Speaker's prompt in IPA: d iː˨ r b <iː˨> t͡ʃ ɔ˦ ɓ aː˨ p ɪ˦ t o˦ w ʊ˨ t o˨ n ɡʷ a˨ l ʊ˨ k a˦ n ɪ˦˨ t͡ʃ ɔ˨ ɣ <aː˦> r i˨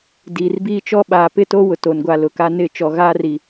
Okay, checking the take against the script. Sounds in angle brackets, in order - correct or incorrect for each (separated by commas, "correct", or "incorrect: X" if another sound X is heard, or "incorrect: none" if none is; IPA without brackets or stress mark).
incorrect: iː˦, correct